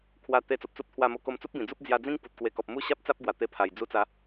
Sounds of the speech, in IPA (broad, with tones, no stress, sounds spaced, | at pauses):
kʰ w a˧ t̪ e˧ t͡s o˨ p̚ t͡s u˦ p̚ t̪ʰ w a˥˧ m o˥˧ k o˧ m t͡s u˦ p̚ b ĩ˨˩ d͡z u˦ p̚ d͡z j a˧ d͡z ĩ˦ ŋ p u˨ t̚ k w e˧ k ɔ˨ p̚ m u˦ ɕ a˦ p̚ t͡s a˦ p̚ ɡ w a˨˩ t̪ e˧ pʰ a˨˩ j d͡z u˧ t͡s a˨˦